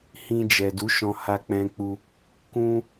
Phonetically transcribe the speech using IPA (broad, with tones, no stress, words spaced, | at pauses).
hĩ˧d͡ʒɛ˨du˨˦ʃɔ̃˧ ha˧k͡pɛ̃˧k͡pu˧ | kũ˧